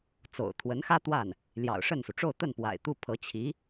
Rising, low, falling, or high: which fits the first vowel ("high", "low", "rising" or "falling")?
low